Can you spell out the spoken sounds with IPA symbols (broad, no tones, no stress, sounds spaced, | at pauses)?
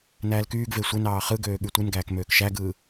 n æː l k yː ɡ v e sʷ e n ɑː χ ɯ ɡ øː ɠ y tʷ ɯ n ɡ æː k m øː k ʃ æ ɡ ɯː